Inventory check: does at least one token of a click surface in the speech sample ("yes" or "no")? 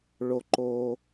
yes